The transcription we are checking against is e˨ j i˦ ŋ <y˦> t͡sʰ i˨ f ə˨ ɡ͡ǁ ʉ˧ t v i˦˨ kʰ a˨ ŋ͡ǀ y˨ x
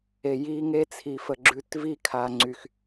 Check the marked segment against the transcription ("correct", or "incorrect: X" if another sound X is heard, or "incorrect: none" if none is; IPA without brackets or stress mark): incorrect: e˦